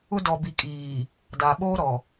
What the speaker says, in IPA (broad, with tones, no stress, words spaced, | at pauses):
ʊ˦ dɔ˨bi˨ kʼiː˨ | da˨ ɓoː˦ɾɔ˨